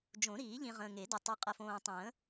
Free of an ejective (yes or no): no